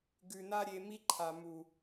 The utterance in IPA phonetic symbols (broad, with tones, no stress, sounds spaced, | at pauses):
ɡ ʉ˨ n a˦ ɾʲ e˧ m i˦ ǃʰ a˨ m u˨